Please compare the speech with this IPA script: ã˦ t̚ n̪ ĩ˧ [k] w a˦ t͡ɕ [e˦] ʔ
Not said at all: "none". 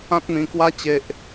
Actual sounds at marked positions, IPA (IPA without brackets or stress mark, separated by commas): k, e˦